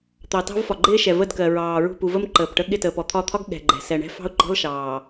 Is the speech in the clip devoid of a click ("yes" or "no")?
no